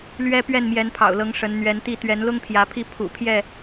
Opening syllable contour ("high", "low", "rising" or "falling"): high